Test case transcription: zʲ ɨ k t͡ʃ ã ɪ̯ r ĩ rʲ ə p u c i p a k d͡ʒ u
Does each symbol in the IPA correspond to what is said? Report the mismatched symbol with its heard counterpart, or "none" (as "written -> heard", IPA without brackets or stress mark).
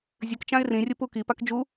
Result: c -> k